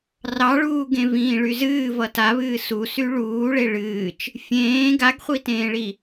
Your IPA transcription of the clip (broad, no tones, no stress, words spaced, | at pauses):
rɑɭuːɡẽ vĩːɭyzɨː vʌtaβɨː susy ɭuːɭe ɭɨːt͡ʃ | fʲẽː ɡaɡχʷitẽːɭi